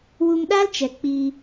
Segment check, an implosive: present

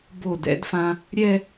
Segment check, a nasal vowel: present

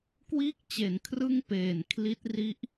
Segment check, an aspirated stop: present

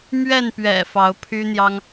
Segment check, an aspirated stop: present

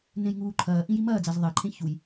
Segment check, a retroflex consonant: absent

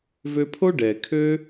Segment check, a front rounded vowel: present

